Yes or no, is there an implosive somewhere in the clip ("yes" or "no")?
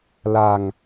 no